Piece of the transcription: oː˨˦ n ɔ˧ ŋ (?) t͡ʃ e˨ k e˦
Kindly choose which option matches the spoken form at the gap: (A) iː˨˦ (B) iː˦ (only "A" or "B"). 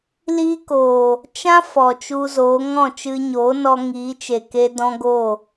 A